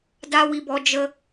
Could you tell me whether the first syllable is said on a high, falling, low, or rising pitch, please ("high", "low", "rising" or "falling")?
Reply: high